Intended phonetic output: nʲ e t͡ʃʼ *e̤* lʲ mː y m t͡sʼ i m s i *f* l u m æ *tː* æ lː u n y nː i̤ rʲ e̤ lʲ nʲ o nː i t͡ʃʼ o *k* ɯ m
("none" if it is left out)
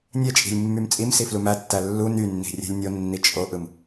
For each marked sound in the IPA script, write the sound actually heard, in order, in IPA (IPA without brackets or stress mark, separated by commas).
i̤, f, tː, ʔ